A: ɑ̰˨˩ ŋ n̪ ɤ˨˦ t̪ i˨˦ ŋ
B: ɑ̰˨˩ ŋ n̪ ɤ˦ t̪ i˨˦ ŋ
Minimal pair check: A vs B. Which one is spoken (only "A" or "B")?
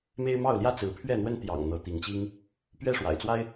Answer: A